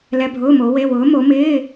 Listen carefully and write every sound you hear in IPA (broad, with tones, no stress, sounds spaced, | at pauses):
l ɛ˧˥˧ bʱ ʊː˧˥˧ m o˨˥ w e˧˥˧ w ʊː˨˥ m o˨˥ m ɪː˧˥˧